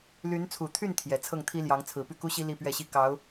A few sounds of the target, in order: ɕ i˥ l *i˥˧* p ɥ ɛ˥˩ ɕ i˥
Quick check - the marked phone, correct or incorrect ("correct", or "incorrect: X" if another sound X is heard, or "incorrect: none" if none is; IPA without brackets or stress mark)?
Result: correct